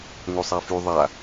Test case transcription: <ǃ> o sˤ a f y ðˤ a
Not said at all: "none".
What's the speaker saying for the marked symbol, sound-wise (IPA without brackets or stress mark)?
ŋ